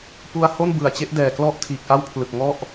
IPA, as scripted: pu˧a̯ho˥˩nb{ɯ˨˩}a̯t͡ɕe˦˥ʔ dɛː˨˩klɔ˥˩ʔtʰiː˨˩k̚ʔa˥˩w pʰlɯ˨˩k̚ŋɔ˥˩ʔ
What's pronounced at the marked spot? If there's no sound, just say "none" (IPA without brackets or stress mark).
ɯ˨˩